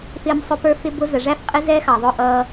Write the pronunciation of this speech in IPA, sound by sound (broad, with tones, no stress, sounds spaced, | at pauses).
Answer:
f ɪː˦ m sˤ ʊ˦ p ə˞˦ f ɪ˦ b ʊ˦ z ə˨ ʐ æ˦ f qʼ ɪ˦ z ɛ˦ x ɑ˨ ðˤ ʊː˦ ʔ ʌː˦